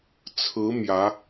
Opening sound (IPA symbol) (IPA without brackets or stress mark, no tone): t͡sʰ